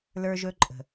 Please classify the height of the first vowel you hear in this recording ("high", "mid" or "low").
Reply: mid